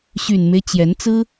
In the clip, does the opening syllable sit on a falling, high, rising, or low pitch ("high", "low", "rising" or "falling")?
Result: low